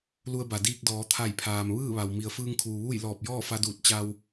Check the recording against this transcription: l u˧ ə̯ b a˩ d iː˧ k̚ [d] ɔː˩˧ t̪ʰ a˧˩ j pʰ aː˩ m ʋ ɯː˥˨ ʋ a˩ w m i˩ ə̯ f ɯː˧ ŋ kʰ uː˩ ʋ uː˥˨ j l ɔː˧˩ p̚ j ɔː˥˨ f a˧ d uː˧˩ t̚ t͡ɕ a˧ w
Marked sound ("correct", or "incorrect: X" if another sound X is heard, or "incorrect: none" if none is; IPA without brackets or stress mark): correct